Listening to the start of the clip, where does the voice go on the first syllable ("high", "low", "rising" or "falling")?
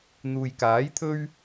low